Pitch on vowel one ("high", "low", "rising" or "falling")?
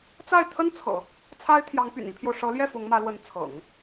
falling